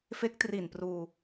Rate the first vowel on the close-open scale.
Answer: mid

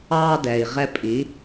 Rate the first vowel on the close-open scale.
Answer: open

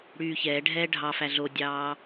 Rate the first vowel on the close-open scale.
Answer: close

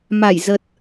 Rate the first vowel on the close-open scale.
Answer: open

